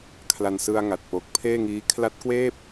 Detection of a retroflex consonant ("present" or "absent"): absent